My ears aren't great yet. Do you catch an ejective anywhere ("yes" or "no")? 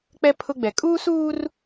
yes